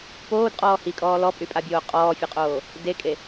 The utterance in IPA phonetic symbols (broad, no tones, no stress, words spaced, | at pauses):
poːdqʼɔː hikʼɔː lɔpʼypʼabʲoː qʼɔːfʲʊqʼoː | dekʼe